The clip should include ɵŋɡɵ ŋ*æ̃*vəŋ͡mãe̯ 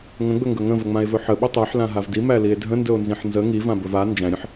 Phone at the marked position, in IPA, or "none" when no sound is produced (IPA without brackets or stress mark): ə̃